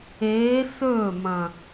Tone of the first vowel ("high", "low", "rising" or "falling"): rising